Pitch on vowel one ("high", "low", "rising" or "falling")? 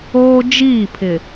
high